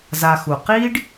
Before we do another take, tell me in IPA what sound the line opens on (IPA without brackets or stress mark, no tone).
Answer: z